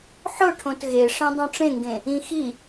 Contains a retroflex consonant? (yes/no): yes